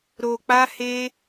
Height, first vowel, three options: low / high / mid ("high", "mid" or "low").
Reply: mid